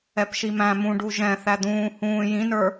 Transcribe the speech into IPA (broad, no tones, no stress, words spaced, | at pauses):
ɛpʃimæ̃ mũɖu ʒɛ̃ θæd̪ũː hũː jĩnə˞